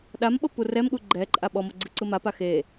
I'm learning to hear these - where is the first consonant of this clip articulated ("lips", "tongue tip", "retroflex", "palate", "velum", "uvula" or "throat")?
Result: tongue tip